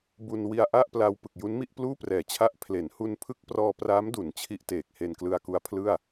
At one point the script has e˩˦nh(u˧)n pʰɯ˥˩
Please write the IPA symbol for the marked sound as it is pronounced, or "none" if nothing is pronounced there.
u˧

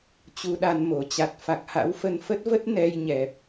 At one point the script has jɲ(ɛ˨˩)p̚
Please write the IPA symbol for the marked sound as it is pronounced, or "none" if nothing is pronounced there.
ɛ˨˩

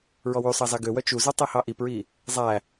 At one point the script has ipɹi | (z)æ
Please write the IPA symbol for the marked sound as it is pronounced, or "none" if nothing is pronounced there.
zˤ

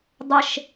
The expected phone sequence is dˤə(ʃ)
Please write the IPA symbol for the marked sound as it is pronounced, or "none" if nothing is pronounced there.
ʃ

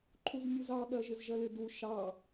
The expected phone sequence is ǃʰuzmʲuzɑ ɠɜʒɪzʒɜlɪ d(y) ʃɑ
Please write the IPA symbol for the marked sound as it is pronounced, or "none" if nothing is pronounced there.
u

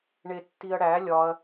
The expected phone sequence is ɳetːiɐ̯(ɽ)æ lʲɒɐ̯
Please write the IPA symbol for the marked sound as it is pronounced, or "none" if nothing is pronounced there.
ɽ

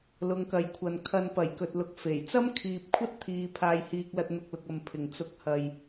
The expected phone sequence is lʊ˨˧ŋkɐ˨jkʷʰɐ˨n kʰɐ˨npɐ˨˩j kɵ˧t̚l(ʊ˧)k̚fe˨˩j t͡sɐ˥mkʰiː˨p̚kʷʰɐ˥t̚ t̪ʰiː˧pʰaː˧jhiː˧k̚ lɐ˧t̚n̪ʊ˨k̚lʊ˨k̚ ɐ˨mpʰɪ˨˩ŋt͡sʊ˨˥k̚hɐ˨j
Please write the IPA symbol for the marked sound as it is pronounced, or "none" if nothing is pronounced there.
ʊ˧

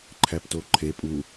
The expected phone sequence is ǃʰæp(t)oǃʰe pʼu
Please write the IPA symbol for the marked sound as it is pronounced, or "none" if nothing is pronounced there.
t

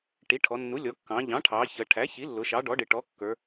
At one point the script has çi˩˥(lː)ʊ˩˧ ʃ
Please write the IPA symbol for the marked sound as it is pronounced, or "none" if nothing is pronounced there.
lː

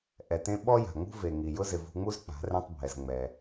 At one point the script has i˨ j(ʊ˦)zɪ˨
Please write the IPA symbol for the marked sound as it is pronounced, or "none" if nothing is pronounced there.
ʊ˦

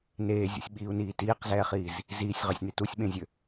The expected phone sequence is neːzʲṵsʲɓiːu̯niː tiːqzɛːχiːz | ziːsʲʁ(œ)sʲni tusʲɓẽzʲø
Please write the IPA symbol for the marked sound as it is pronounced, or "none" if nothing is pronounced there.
œ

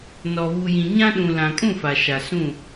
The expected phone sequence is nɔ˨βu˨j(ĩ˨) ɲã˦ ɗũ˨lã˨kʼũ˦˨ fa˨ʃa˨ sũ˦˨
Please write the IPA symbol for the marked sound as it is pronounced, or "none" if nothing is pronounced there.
ĩ˨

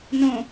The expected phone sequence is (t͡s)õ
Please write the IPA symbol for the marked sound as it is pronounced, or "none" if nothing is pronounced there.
n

